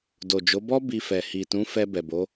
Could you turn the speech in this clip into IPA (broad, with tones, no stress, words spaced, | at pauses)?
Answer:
do˨d͡ʒo˨˦bɔ˦ bi˧fɛ˨ hi˨tũ˨˦fɛ˧ bɛ˨bo˨˦